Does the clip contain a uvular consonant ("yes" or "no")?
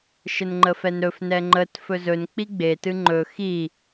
no